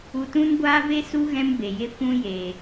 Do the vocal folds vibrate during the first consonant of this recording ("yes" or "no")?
no